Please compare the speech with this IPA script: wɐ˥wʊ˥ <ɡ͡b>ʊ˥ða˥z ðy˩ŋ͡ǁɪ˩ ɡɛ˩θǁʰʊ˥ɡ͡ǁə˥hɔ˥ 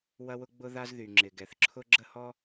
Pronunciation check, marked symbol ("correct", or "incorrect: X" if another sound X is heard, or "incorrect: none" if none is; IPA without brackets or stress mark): correct